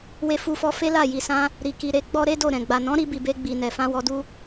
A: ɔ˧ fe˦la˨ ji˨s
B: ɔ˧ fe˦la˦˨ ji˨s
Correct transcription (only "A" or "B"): B